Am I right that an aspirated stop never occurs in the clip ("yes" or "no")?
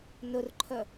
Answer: no